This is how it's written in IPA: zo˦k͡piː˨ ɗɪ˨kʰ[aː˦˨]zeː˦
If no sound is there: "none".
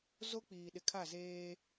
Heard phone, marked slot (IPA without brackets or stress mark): a˦˨